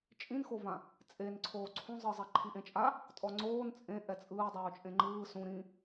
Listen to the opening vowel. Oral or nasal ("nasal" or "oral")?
nasal